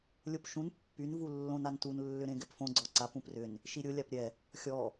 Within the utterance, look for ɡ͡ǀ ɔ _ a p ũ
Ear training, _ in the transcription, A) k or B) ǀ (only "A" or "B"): B